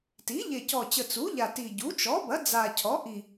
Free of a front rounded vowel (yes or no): yes